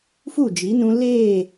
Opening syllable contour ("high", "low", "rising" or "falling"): falling